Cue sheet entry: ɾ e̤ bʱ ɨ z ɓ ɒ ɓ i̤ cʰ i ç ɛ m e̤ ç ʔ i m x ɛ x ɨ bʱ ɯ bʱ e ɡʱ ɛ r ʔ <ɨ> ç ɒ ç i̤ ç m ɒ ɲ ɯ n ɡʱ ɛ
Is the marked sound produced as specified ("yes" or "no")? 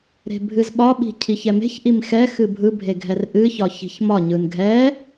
yes